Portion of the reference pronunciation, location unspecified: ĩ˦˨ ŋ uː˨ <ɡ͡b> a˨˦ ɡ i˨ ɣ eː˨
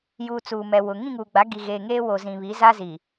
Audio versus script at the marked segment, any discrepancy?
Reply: no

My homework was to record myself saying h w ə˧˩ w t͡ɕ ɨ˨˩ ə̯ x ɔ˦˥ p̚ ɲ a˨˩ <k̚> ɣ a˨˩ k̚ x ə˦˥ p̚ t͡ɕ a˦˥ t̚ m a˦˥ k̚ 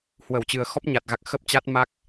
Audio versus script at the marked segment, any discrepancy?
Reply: yes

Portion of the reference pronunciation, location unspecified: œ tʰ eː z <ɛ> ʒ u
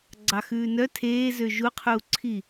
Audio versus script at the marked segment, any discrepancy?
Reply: yes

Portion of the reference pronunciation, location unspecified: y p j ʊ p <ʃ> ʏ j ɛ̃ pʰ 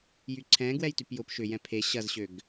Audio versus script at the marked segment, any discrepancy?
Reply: no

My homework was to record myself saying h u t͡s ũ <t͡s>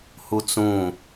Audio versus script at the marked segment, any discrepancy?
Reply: yes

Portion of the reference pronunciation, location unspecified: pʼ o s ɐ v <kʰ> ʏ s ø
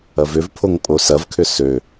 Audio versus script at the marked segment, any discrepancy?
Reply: no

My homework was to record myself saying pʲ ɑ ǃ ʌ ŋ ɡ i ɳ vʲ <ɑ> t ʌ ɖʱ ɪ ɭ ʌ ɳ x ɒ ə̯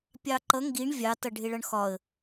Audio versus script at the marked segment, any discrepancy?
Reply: no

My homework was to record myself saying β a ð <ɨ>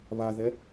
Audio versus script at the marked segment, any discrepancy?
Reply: yes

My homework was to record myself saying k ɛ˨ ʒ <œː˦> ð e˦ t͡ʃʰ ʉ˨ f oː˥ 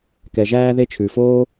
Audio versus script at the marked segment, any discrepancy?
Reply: yes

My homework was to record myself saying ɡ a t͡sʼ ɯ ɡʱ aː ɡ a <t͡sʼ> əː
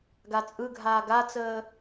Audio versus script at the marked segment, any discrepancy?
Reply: yes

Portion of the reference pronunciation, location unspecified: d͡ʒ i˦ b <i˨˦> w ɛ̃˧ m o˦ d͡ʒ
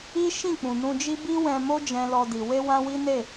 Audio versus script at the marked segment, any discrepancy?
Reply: yes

